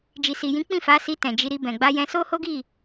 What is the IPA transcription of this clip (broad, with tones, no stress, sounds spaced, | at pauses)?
d͡ʒ i˨ s i˨ j ĩ˨˦ k͡p ĩ˦˨ f a˨˦ s i˧ t ɛ̃˨ d͡ʒ i˧ ɾ i˧ b ɛ̃˨ ɡ͡b a˧ j ɛ̃˧ s o˦ h o˦ ɡ i˦˨